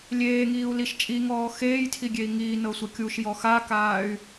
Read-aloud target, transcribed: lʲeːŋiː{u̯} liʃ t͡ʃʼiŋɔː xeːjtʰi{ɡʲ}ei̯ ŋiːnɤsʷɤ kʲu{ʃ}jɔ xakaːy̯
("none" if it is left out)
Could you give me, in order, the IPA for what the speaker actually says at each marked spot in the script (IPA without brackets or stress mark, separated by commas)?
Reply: u̯, ɡʲ, ʃ